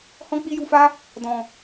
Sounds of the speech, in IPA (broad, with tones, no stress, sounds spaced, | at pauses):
h ɔ̃˦ k͡p i˦ j u˧ f a˦ | d ɔ̃˨